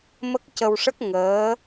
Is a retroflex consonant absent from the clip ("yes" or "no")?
no